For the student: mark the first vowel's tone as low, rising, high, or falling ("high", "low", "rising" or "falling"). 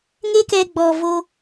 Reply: high